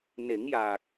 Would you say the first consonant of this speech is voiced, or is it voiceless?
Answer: voiced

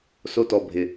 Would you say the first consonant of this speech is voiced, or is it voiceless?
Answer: voiceless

